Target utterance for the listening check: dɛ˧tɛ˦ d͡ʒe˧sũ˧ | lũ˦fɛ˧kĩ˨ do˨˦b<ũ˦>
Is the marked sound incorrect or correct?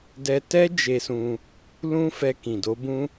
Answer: correct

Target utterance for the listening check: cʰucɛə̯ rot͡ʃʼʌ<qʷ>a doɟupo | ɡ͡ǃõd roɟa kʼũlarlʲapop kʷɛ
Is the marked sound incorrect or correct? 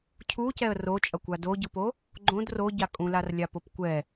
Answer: incorrect: kʷ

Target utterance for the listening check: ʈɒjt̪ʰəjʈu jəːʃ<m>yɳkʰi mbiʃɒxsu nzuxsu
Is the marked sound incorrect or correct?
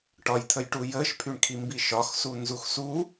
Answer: incorrect: pʰ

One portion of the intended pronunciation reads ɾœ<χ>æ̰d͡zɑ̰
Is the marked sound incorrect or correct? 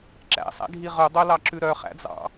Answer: correct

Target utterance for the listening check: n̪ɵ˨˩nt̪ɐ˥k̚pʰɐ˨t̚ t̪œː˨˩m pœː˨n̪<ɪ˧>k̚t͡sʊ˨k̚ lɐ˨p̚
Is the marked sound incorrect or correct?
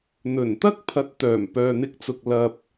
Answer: correct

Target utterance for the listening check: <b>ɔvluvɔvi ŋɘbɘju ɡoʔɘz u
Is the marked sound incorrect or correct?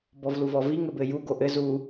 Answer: correct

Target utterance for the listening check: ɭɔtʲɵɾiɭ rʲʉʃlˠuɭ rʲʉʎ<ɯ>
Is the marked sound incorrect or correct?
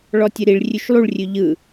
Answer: correct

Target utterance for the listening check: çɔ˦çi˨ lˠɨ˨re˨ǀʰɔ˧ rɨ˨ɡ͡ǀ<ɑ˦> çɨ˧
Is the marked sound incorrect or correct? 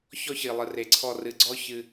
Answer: incorrect: ɔ˦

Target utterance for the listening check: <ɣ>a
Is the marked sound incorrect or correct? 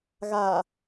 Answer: correct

